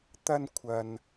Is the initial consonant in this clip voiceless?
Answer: yes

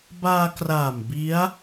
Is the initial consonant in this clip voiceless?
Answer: no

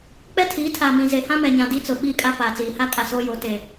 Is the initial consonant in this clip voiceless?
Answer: yes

